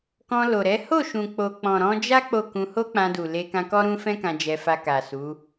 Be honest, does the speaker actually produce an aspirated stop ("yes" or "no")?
no